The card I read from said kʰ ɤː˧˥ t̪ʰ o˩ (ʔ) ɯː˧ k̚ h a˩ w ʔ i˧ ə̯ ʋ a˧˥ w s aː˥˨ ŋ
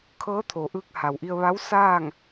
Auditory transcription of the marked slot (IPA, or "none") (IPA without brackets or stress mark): ʔ